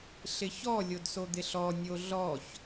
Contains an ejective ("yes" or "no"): no